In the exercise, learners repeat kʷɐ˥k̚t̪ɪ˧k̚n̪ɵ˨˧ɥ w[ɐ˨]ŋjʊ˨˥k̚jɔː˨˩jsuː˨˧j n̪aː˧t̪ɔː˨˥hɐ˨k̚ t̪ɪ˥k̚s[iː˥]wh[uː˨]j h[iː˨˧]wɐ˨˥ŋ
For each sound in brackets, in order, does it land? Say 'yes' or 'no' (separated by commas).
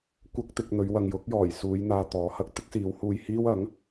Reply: yes, no, no, no